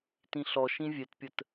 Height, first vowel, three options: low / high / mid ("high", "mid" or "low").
high